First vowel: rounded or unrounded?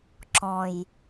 rounded